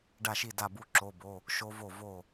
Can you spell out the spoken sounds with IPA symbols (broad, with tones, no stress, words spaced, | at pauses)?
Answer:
ɖa˥˨ʃi˥˨ da˥˨bu˦˥ ǁo˧˥˧bo˧˥˧ | ʃo˦˥vo˥˨ vo˥˨